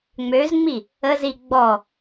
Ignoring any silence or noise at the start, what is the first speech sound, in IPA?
ŋ͡m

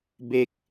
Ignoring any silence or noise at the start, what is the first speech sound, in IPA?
b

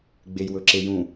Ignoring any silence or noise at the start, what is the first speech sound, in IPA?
ɡ͡b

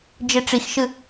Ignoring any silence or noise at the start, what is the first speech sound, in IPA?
d͡ʒ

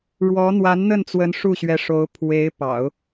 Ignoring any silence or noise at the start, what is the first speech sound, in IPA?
ɻ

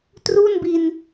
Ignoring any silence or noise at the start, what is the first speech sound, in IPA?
t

